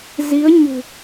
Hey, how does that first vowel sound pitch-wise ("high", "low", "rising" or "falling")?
rising